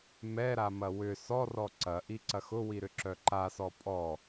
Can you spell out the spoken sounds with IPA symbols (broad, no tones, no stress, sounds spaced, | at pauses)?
m ɛ ɾ a m ɐ w ʏ s ɔ r ɔ ǀ ɐ ʔ i ǀ ɐ x ʊ w i ɾ ʏ ǁ œ ǃ a s ɔ pʼ ɔ